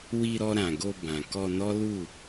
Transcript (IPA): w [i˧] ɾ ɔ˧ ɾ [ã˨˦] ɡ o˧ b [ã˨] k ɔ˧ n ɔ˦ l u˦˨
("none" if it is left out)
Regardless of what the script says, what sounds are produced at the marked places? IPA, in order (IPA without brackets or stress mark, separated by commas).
i˧, ã˨, ã˨